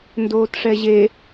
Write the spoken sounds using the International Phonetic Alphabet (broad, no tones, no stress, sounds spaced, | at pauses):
n d oː t ʂ ɛ ʑ e